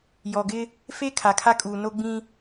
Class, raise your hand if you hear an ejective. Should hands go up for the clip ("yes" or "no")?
yes